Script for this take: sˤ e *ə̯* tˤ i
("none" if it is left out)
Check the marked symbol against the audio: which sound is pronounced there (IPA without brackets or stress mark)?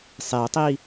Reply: ʊ̯